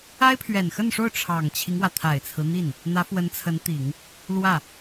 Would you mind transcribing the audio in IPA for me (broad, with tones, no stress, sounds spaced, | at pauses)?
a˥ ɪ̯ pʰ ɥ ɛ˨˩ n x ə˥˧ n ʂ o˥˩ ʊ̯ ʈ͡ʂʰ ɑ˨˩ ŋ t͡ɕʰ i˦ ŋ w ä˩ t̪ʰ a˨˩ ɪ̯ t͡sʰ ɹ̩˦ n̪ i˥˩ n | n̪ ä˧˥ f w ə˧˥ n t͡sʰ ə˧˥ n t̪ i˨˩˦ ŋ | l w ä˥˩